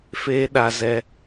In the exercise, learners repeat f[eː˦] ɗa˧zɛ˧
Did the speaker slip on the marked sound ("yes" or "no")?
no